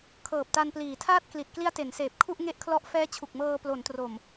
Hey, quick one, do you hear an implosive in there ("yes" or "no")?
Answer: no